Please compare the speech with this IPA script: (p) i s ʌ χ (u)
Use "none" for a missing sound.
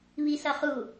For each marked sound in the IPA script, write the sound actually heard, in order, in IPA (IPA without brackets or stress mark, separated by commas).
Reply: β, u